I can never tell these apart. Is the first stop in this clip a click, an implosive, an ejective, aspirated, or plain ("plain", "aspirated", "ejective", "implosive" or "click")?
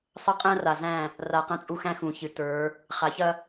ejective